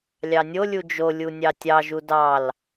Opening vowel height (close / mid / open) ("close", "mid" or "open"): open